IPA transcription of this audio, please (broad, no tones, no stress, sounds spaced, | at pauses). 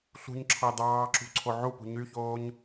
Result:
ɬ ṳ ɲ ǁʰ ɑ d ɑː ǁ ṳ ǀʰ o ʕ u p ṳ ɲ y ç oː ɲ